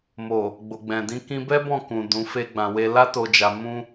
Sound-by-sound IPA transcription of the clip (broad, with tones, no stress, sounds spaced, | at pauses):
m o˨ | ɡ͡b o˨ ɡ͡b ɛ̃˨ d ĩ˧ k ĩ˧ b ɛ˦ b ɔ̃˦˨ k ũ˨ d ũ˨˦ f e˦ ɡ͡b ã˧ w e˦ l a˦ t o˧ d͡ʒ a˧ m ũ˦